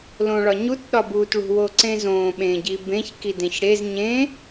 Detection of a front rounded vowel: absent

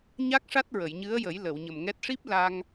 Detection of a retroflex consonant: present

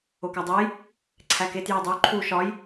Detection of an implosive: absent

